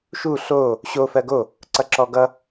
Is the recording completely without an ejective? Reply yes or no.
yes